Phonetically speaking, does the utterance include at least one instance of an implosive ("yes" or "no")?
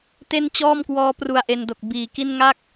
no